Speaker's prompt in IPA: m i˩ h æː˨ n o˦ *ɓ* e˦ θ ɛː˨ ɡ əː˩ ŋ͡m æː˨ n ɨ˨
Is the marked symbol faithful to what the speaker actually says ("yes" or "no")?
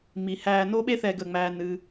yes